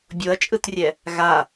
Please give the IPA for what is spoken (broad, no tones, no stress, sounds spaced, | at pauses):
bʲ o ɐ̯ t͡ʃʼ ɯ t rʲ ɛ | ɣ a